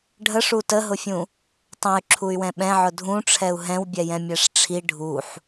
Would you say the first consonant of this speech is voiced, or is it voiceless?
voiced